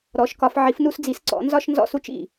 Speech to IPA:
ɾ ɔ˨˦ ʃ k ɒ˨˦ f ʕ i˨˦ f n u˦ s d͡z i˨˦ s ǀ ɔ̰˨˦ n z ɒ˦ ʃ n z ɔ̰˦ s u˦ t͡ʃ ḭ˧˩

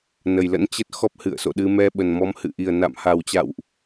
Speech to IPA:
n ə˨˩ j l ə̰˧˥ n t͡ɕ ə˦˥ t̚ x ɔ˦˥ p̚ h ɨ̰˧˨ ə̯ s o̰˧˨ ɗ ɨ˧ m ɛ˧ ɓ ə˨˩ n m ɔ˨˦ m h ɨ̰˧˨ ʔ i˨˩ ə̯ n a̰˧˨ m h a˨˩ w t͡ɕ a̰˧˨ w ʔ

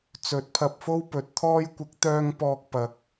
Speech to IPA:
t͡s ɵ˨˥ t̚ pʰ ɐ˧ p̚ f o˥ w p ɵ˨ t̚ t̪ʰ ɔː˧ j kʷ ɪ˨˥ k̚ t̪ œː˥ ŋ p ɔː˥ k̚ p ɐ˧ k̚

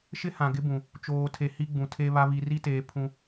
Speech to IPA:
ʃ ɪ˦ h ã˨ ɡ ɪ˦ b ũ˨ | t͡ʃ oː˨ tʰ e˨ h i˦ ɡ͡b ũ˨ tʰ e˦ β a˦ β i˨ r i˦ t eː˨ pʰ ũ˦

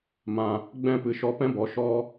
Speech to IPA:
m ã˨ | ɡ͡b ɛ̃˦˨ p ɨ˨ ʃ ɔ˧ p ɛ̃˦ b ɔ˨ ʃ ɔ˧

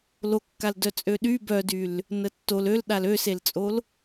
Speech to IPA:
l o kː a l d œ t͡sʼ ø ɗ y b œ d y l | n ə tː o l ø l ɗ a l ø s e l t͡sʼ o l

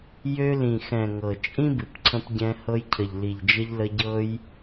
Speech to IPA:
j ø˧ l ĩ˨ x ɛ̃˨ ŋ ɤ˨ t͡ʃʼ ĩ˦ b ɨ˨ p ǀʰ ə̃˧ p ɟ ɛ̃˧ h ɤ˧ j cʰ ə˨ ʎ l i˨ ʎ d͡ʒ ə˧ ʎ l ə˧ ɟ ɤ˧ j

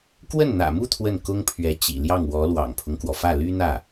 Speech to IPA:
k w ə˥˩ n n̪ ä̰˨˩ m u˥˧ t̪ʰ w ə˥˩ n k ʊ˥ ŋ pʰ ɥ ɛ˧˥ t͡ɕ ḭ˨˩ l j ɑ˥˩ ŋ w ɔ˧˥ l w ɑ̰˨˩ ŋ pʰ ʊ˦ ŋ k w ɔ˩ f ä˥˩ l y˥ n̪ ä˥˩

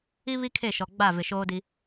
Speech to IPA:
i˦ β i˦ kʰ e˦˨ ʃ ɔ˨ ɡ͡b a˦˨ v ɪ˨ ʃ oː˦ d i˦

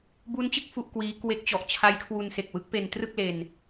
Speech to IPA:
b u˦˥ n t͡ɕ ɯ˥˩ k̚ f u˥˩ ʔ k w iː˦˥ k w e˦˥ k̚ t͡ɕ ɔ˨˩ ʔ t͡ɕʰ a˦˥ j kʰ w u˧ n s e˨˩ k̚ w ɯ˦˥ k̚ p e˧ n t r ɯ˥˩ k̚ l e˧ n

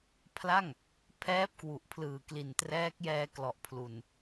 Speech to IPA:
pʰ l a˥˩ ŋ | pʰ ɛː˦˥ p̚ k w u˨˩ ʔ pʰ l ɯː˨˩ k l i˨˩ n t r ɛː˦˥ k̚ j ɛː˧ k l ɔ˨˩ ʔ pʰ l u˨˩ n

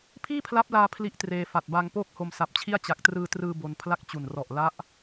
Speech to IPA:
pʰ iː˥˩ pʰ l a˦˥ p̚ l aː˧ pʰ l i˥˩ ʔ t r eː˧ f a˨˩ t̚ b a˧ ŋ p oː˥˩ k̚ h o˧ m s a˨˩ p̚ t͡ɕʰ i˥˩ a̯ t͡ɕ a˨˩ k̚ t r ɯː˧ t r ɯː˧ b o˧ n pʰ l a˥˩ k̚ t͡ɕ u˨˩ n r ɔ˨˩ ʔ l a˦˥ ʔ

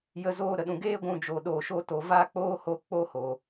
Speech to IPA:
j ə˦ z oː˦ ɾ ə˨ ɗ ũ˧ ɡ eː˦ ɡʷ ũ˧ d͡ʒ oː˧ ɗ oː˧ ʃ o˦ t o˨ v aː˦ k͡p oː˦ h o˧ k͡p o˦ h o˨

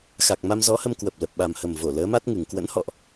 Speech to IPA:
x a˨˩ k̚ m a˧ m z ɔ˨˦ h ə˧ m k w ə˨˩ p̚ l ə˨˩ p̚ ɓ a˨˩ m h ə˨˩ m v o˧˩ l əː˨˦ m a˦˥ t̚ ŋ ɨ˨˩ ŋ k w ə̰˧˥ n h ɔ̰˧˨ ʔ

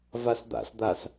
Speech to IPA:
v a s d̪ a̰ s d̪ a s

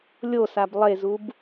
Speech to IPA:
lʲ o s a b lˠ e z u b

